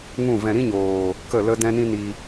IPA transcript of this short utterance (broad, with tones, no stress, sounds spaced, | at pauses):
ŋ ũ˦˨ v ɛ̃˧ ɾ ĩ˦ ɲ oː˨ | k ə˦˨ l ə˦ d ɛ̃˦ n ĩ˦ n i˧